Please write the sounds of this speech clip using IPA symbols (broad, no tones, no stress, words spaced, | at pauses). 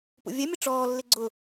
pṵvʲɛ mʲʊʈ͡ʂɔː lːɪɡ͡ǀʊ